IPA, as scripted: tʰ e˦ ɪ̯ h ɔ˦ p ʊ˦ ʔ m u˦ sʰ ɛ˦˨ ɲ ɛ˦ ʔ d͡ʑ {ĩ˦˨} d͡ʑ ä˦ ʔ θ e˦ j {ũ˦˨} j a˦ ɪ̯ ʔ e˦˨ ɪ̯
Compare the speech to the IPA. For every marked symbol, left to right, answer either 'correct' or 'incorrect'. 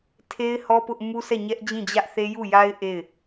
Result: correct, incorrect: u˦˨

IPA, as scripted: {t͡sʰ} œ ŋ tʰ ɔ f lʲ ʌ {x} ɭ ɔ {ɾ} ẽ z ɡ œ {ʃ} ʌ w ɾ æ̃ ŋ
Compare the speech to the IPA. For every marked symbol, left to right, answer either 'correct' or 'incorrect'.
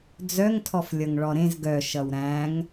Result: incorrect: d͡z, incorrect: ŋ, correct, correct

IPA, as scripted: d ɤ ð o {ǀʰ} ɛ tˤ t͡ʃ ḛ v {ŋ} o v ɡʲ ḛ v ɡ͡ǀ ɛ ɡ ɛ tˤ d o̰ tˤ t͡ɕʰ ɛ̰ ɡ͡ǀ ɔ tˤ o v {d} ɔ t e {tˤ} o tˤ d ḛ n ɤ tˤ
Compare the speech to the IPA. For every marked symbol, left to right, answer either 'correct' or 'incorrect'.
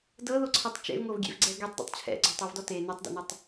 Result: correct, correct, correct, incorrect: n

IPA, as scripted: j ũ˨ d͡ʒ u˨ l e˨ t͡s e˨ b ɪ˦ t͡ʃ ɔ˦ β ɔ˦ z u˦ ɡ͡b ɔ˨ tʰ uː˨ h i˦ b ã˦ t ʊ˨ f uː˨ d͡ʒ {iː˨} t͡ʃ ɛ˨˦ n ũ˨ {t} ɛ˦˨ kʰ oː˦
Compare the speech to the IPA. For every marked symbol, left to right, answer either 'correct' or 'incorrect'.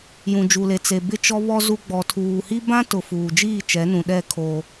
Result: incorrect: iː˦˨, incorrect: ɗ

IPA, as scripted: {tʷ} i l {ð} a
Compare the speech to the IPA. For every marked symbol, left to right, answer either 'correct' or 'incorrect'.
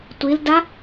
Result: correct, incorrect: d

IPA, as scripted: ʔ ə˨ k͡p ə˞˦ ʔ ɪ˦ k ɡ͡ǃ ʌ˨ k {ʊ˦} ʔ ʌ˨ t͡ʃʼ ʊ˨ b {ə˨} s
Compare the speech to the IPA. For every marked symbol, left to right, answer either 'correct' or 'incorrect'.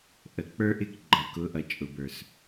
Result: incorrect: ʊ˨˦, incorrect: ə˞˨

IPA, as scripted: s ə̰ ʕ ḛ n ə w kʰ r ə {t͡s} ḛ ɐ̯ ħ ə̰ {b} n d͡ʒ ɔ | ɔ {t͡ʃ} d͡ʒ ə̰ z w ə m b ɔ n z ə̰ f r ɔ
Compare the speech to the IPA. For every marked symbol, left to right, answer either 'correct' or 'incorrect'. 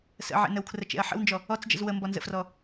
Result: incorrect: t͡ʃ, incorrect: w, incorrect: t͡s

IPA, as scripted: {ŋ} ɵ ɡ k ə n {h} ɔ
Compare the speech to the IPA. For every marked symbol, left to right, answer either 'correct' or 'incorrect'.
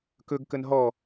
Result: incorrect: k, incorrect: ɦ

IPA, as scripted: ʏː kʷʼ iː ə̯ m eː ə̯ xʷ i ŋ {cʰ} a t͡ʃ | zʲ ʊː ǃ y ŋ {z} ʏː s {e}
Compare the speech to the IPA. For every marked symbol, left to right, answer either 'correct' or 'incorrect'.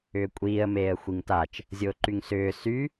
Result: incorrect: t, incorrect: s, incorrect: y

